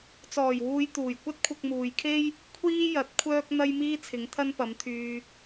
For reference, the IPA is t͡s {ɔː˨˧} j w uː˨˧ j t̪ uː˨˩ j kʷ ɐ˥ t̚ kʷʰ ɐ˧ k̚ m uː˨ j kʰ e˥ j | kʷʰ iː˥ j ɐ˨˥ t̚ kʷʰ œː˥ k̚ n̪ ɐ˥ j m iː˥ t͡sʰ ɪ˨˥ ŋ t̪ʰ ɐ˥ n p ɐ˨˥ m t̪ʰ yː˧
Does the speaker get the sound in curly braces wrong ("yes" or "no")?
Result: yes